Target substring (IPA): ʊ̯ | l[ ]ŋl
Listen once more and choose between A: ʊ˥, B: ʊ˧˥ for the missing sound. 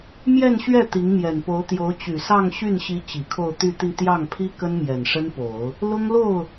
A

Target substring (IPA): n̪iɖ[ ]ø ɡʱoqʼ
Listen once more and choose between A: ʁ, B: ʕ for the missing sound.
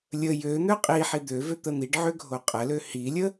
B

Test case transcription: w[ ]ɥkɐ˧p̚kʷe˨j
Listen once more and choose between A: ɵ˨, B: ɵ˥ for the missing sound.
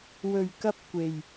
A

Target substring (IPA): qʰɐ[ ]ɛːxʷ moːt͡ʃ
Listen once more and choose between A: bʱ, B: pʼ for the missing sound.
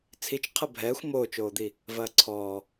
A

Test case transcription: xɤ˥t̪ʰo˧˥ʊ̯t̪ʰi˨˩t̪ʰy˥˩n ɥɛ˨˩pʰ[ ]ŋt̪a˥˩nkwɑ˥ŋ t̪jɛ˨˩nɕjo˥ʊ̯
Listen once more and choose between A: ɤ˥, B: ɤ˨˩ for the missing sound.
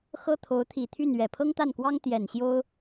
A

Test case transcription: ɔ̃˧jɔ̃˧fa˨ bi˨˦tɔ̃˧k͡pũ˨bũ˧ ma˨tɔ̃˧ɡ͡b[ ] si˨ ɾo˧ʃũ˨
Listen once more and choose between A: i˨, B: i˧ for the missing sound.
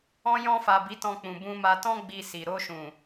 A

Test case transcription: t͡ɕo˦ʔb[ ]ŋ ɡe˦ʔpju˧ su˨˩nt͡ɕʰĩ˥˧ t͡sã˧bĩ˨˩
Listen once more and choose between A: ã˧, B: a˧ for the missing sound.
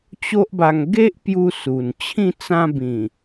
B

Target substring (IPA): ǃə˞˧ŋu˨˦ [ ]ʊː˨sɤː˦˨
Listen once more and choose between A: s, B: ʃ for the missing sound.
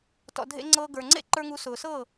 A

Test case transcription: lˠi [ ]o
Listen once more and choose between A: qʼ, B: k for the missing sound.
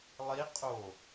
A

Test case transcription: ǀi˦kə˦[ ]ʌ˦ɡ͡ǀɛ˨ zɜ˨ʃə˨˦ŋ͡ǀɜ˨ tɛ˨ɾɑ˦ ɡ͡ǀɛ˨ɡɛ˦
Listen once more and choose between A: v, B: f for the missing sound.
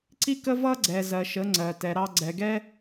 A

